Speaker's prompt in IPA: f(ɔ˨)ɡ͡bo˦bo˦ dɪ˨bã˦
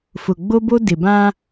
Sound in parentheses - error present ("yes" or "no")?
yes